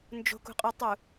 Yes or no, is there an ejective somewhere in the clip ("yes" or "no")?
yes